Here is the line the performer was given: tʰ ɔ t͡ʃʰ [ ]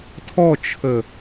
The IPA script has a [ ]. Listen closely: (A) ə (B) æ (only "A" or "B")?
A